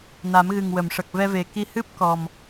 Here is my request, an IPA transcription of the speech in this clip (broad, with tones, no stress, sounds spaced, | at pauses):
n a˨˩˦ m ɣ ɨ˨˩ ŋ w ə˨˩˨ m ʂ ə˨˩ k̚ v ɛ˧ v e˨˩ k i˧ h ɨ˦˥ p̚ k ɔ˨˩ m